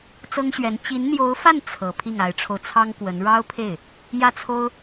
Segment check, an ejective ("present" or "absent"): absent